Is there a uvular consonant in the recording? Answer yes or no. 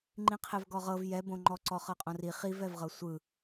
yes